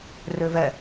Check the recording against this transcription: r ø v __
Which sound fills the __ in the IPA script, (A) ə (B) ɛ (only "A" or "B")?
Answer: B